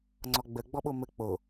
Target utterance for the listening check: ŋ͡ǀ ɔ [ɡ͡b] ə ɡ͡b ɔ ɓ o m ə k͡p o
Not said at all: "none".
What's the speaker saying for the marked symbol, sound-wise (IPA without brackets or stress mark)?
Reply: ɡ͡b